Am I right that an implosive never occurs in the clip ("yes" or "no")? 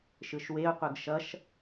yes